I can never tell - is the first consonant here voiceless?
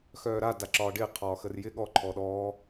yes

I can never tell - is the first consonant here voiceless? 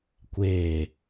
yes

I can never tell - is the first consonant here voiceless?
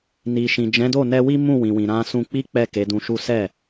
no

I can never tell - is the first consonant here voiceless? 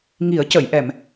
no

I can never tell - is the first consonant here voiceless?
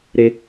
no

